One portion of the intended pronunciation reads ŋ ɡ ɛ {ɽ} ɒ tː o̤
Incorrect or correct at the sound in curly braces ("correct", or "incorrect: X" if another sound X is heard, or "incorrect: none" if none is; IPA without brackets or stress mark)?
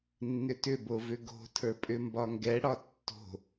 correct